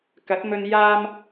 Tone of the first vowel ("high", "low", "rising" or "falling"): rising